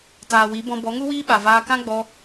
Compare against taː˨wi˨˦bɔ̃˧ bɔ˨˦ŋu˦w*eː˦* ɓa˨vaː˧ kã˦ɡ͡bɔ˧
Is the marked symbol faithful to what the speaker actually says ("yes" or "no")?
no